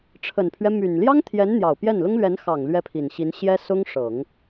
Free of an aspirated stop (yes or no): no